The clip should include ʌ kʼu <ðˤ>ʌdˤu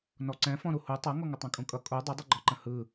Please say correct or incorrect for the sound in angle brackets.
incorrect